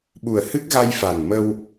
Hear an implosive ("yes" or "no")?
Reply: yes